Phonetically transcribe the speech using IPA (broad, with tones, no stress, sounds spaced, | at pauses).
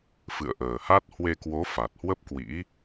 f ɨ̰˧˨ ə̯ ʔ əː˨˩ h a˦˥ t̚ h w e˧ k w o˨˦ f a˨˩ t̚ h w ə˦˥ p̚ k w ḭ˧˥